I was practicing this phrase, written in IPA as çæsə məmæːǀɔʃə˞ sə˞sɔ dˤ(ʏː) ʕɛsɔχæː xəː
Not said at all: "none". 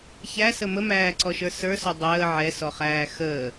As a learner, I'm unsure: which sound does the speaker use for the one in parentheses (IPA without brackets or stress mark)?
əː